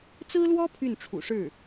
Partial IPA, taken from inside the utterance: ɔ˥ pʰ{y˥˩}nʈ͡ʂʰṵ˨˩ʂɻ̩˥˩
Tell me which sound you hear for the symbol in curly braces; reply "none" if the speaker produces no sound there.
y˥˩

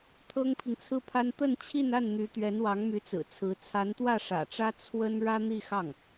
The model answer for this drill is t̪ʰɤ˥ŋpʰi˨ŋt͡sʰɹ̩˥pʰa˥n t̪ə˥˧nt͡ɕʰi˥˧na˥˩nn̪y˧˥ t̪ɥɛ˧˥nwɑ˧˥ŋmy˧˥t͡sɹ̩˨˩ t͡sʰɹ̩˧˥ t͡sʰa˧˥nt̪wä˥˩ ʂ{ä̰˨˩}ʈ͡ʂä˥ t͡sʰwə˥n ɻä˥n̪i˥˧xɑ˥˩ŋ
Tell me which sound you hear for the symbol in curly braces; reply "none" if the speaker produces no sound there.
ä̰˨˩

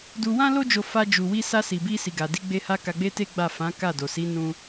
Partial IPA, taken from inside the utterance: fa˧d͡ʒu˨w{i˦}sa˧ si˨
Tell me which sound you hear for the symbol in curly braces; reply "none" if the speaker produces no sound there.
i˧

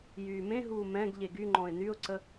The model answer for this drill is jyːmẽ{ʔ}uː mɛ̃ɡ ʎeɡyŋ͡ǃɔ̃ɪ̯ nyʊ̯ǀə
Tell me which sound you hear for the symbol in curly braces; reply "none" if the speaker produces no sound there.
ɦ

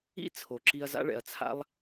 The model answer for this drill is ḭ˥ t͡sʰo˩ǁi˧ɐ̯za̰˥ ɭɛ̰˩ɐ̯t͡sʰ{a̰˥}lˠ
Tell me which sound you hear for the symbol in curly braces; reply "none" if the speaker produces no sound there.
a̰˥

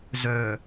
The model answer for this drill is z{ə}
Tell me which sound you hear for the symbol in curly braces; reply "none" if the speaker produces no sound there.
œ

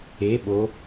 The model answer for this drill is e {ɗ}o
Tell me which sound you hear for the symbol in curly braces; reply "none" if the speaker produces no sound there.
ɓ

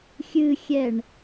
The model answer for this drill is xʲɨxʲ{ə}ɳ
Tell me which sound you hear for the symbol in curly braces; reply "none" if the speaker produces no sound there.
ɛ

